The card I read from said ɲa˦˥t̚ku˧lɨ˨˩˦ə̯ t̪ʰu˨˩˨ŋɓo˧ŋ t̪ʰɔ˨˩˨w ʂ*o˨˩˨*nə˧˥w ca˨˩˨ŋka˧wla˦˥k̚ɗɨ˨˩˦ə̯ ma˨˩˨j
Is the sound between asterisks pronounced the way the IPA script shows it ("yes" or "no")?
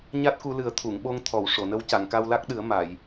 yes